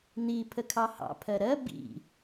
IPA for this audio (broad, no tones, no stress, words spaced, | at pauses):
n̪i pʰəkʰɑhɑ̰ pʰɜɾɜ bḭ